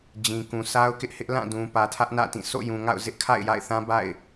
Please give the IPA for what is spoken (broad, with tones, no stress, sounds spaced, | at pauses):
d͡ʑ ĩ˨ k ũ˨ s a˦ ʊ̯ k ɪ˦ ʔ h ɪ˦ ʔ l ã˦˨ d ũ˨ p ä˨ tʰ ä˦ ʔ n ä̰˦˨ t ĩ˦˨ s o̰˦˨ j ũ˨ ŋ a̰˦˨ ʊ̯ z ɪ˦ ʔ kʰ a̰˦˨ ɪ̯ j a̰˦˨ ɪ̯ θ ã˦ b a̰˦˨ ɪ̯